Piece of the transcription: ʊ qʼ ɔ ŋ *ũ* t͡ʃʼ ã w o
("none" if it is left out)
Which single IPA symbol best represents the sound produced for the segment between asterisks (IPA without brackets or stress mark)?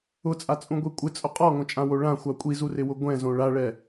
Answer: õ